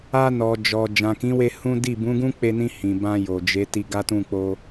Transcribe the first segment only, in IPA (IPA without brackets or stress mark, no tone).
a